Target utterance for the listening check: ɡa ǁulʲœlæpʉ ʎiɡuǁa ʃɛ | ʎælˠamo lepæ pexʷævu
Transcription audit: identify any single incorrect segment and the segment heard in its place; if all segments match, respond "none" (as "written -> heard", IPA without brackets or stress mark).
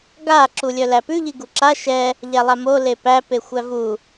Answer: none